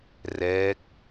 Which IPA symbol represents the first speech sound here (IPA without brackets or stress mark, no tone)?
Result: r